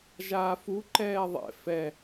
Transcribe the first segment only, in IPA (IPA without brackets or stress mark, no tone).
ʒ